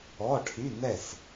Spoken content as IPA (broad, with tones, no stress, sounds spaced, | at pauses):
ɔ˧˥˧ ʈʰ y˧˥˧ n ɛ˥˨ s